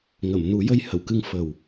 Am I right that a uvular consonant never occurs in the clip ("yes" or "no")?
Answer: yes